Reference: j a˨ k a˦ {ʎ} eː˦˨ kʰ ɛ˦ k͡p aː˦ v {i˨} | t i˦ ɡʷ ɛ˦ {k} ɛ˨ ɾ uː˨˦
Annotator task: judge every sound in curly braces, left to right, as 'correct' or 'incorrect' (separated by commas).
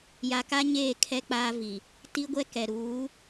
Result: incorrect, correct, correct